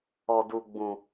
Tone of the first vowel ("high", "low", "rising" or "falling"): high